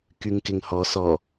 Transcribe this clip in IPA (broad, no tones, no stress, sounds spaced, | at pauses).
k y ŋ k ɪ ŋ h ɔ s ɔ